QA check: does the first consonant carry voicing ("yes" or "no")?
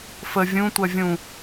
no